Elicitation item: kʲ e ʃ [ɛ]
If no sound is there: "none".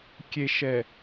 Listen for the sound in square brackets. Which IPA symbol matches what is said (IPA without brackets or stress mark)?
ɛ